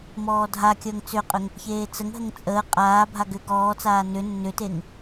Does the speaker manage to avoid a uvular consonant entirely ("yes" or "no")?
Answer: no